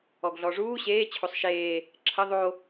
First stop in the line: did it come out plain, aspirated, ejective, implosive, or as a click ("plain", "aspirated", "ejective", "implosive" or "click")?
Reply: plain